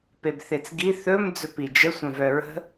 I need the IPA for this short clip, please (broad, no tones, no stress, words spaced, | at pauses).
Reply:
pebθet͡sɡi θɵm d͡zɵpid͡ʒə sʷœ̃vœɹə̤